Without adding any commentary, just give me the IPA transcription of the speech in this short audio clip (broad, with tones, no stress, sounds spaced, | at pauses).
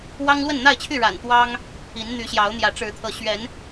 w ɑ˦ ŋ l w ə˥˨ n n̪ a˥˨ ɪ̯ t͡ɕʰ y˥˨ ɻ a̰˨˩ n t̪ w ɑ˦ ŋ | i˨˦ n n̪ y˨˦ ɕ j ɑ˨˦ ʊ̯ n̪ j ä˨˦ ʈ͡ʂ ɻ̩˨˦ t̪ʰ ɤ˨˦ ɕ ɥ ɛ˨˦ n